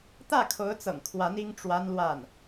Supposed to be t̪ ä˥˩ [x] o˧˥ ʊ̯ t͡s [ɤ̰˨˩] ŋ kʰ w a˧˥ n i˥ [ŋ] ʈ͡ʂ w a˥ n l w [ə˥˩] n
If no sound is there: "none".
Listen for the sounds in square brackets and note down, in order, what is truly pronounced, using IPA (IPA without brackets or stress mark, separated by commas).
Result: kʰ, ɤ̰˨˩, ŋ, a˥˩